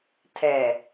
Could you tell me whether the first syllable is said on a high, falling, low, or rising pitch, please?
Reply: low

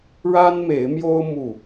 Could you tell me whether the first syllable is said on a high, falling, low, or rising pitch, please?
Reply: high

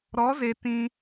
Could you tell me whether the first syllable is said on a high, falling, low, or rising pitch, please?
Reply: rising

